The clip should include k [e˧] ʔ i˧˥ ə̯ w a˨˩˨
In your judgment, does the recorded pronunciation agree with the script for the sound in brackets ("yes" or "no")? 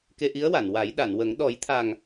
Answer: yes